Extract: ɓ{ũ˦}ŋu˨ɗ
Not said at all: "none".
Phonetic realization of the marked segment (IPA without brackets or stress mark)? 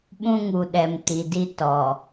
ũ˦